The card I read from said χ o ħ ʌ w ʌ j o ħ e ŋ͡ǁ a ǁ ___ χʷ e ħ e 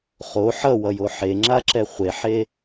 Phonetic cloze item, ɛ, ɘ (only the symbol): ɛ